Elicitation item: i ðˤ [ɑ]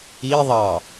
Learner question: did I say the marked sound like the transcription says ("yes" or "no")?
yes